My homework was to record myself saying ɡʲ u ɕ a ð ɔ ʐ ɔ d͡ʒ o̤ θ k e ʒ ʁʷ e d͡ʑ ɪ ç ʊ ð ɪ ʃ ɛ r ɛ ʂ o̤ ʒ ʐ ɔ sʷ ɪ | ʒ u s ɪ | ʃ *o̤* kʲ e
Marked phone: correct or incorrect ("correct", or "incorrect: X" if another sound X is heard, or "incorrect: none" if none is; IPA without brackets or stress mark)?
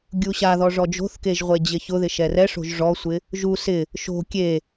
correct